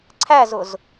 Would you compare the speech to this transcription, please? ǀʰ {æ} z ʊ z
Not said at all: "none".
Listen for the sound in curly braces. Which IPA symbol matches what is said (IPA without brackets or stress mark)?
æ